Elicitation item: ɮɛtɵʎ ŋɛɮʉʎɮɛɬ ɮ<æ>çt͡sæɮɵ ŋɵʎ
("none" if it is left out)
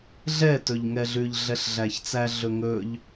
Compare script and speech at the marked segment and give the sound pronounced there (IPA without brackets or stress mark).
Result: æ